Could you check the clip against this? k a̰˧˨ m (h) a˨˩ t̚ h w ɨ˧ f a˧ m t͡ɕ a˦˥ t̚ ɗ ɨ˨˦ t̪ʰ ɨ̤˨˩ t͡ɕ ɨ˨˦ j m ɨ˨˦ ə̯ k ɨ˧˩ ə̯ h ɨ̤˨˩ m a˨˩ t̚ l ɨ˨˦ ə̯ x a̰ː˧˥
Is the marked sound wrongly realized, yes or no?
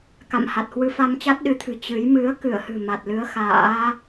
no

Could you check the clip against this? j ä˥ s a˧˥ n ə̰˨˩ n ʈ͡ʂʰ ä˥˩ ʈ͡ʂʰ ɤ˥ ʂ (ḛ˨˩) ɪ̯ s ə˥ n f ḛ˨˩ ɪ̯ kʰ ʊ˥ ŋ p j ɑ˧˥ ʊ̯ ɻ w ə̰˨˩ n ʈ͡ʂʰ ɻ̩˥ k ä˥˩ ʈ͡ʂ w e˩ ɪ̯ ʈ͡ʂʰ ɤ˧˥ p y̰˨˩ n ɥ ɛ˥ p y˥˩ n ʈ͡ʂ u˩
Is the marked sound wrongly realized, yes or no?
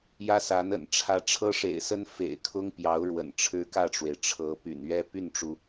no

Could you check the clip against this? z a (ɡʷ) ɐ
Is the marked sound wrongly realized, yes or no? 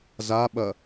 yes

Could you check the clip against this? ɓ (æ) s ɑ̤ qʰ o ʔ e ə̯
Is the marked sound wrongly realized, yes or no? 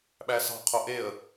no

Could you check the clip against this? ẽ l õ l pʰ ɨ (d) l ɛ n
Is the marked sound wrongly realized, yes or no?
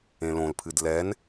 no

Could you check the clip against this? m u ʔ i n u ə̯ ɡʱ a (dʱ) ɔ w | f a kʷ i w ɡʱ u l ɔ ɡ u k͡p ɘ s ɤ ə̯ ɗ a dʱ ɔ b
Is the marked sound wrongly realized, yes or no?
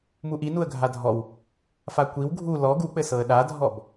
no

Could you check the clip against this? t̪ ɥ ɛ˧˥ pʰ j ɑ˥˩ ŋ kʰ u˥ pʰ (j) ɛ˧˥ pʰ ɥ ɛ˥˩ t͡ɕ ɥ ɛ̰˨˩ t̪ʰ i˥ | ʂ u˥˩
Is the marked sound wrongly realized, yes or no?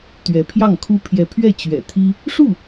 no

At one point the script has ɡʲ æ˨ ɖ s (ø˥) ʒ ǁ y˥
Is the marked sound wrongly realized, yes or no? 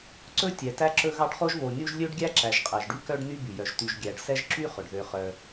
yes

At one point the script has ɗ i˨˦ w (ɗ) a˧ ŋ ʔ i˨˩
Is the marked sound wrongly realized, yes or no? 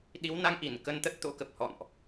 yes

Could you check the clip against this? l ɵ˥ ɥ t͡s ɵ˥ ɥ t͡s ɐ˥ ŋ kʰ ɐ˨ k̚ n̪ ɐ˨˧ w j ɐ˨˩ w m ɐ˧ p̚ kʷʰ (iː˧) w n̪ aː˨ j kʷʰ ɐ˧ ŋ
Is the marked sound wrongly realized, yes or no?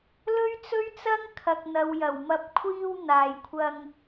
no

